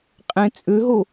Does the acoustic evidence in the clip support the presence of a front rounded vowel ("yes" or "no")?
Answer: yes